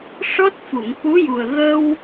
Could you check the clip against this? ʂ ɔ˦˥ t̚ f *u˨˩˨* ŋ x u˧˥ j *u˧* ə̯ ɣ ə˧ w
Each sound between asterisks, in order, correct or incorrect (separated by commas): correct, incorrect